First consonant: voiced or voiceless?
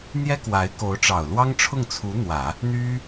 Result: voiced